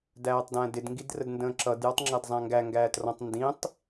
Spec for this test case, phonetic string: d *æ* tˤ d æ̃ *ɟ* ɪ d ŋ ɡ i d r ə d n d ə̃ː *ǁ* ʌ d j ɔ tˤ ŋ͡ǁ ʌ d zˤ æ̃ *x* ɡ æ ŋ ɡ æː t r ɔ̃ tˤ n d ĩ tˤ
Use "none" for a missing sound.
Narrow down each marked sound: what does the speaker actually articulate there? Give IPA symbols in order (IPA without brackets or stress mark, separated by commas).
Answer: æː, d, ǁ, ŋ